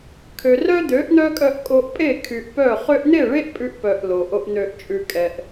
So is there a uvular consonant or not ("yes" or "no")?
yes